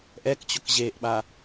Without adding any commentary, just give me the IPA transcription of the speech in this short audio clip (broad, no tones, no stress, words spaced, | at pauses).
ʔɛkt͡ɕʊk ʑeʔɓa